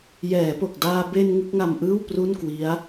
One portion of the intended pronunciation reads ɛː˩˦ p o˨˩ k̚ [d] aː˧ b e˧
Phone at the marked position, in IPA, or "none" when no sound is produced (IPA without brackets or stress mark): d